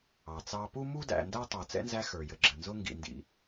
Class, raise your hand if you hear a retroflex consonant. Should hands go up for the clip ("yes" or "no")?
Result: no